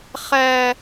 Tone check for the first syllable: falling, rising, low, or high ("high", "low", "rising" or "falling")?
high